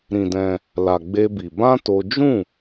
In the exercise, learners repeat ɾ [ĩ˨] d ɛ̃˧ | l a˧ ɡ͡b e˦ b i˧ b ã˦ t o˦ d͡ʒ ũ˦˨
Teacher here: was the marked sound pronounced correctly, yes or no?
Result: no